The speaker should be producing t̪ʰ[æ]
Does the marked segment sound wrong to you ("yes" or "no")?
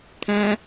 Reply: yes